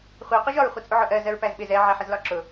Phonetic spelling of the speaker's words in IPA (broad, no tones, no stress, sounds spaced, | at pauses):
χʷ i qʷ ʌ ʒ ɒ ɹ χʷ ʌ t͡sʼ u ʕ ʊ ʔ ɜ z ɜ ɹ p æ z ɓ ɪ z ɛ ʕ æ ħ ə z l ɒ ǁ ʊ